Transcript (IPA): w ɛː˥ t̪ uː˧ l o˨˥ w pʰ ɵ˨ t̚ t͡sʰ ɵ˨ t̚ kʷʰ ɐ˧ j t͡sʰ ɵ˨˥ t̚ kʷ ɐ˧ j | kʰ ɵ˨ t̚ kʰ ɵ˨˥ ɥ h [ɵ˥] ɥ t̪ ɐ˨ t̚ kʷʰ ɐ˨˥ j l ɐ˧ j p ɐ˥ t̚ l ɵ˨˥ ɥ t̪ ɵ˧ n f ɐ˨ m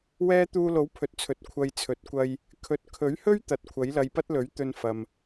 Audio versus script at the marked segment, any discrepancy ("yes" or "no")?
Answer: no